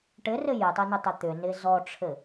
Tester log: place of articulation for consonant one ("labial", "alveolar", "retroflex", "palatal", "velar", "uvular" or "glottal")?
retroflex